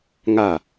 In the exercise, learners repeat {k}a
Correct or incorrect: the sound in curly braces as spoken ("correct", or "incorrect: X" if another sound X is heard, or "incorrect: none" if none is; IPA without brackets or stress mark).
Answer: incorrect: ŋ